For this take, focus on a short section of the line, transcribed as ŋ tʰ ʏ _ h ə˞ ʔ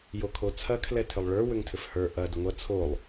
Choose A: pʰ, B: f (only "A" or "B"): B